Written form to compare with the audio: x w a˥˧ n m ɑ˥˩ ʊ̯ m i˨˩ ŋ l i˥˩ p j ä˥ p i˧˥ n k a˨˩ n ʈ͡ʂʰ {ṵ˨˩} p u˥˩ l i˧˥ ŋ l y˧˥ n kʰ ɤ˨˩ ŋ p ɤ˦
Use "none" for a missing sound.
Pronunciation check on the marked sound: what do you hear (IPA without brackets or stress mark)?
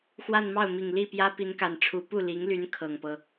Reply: u˧˥